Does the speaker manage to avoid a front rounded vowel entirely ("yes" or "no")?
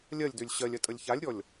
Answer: no